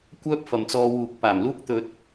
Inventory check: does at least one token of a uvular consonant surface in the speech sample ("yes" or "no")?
no